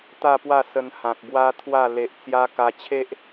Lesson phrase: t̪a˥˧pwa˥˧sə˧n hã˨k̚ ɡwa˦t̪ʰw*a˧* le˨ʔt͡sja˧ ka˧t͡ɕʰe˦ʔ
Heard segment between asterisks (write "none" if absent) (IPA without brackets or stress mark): a˥˧